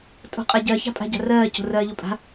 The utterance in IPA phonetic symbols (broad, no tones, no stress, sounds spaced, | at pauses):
tʼ o̤ qʼ a ɟ ɜ ç a̤ pʼ a̤ ɟ a̤ r ɜː c o̤ r ɜː ʎ o pʼ a̤